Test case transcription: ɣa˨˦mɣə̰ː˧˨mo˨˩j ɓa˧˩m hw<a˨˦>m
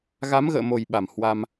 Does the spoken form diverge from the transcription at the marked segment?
yes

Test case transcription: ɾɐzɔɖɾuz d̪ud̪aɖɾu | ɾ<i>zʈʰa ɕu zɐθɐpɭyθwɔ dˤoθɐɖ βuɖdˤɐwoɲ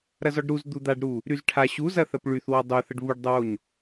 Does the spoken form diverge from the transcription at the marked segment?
yes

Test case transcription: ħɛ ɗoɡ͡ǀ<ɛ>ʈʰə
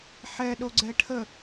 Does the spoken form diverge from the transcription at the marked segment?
no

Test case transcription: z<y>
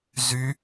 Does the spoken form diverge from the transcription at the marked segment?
no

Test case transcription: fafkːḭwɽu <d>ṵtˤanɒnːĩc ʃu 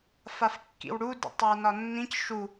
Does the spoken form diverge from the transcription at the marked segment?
no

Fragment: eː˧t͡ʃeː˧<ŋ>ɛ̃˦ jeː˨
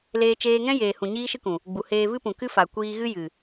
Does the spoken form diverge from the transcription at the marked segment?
no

